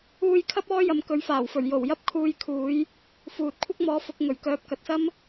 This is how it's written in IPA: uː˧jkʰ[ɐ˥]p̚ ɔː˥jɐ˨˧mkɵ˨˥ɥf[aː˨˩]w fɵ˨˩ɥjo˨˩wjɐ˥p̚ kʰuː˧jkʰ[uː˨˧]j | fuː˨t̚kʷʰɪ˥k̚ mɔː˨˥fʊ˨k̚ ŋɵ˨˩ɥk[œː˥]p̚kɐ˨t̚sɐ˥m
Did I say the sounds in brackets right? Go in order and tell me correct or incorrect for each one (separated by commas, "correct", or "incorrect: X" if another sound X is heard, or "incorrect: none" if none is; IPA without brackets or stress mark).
correct, correct, correct, incorrect: œː˨˥